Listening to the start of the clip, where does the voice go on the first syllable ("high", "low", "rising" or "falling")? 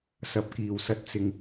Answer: low